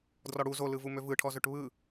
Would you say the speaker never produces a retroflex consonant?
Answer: no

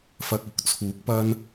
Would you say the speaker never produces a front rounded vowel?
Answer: yes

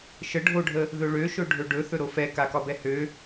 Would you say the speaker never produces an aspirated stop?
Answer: yes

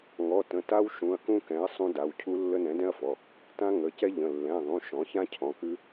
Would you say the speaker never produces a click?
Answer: yes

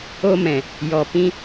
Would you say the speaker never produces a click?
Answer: yes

